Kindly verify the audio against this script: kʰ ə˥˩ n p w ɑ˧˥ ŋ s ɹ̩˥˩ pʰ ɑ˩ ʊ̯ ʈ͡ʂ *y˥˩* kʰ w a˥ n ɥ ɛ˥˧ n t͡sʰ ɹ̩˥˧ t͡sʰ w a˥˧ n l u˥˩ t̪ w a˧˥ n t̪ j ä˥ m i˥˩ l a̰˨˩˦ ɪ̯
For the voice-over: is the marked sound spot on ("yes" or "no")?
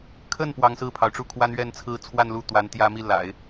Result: no